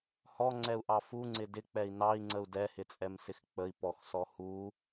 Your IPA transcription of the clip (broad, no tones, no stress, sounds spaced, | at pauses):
h ɔ ŋ͡ǀ ɛ u̯ ʔ ɑ f u ŋ͡ǀ ɪ d ɪ k͡p ɛ i̯ n ɑ i̯ ŋ͡ǀ ə u̯ d ɛ h ɪ t͡sʼ ɛ m s ɪ x k͡p ə i̯ p ɔ x s ɔ h u